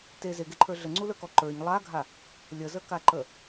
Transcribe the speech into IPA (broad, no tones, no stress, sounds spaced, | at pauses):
t e z e ɡ e ǃʰ ə˞ ɮ ə ŋ͡ǀ u l ə˞ k ɔ ǃ ə˞ ɲ lˠ a ɡʱ a | lʲ ə z ə k a ǃ ə